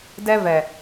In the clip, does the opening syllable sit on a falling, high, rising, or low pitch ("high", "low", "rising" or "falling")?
high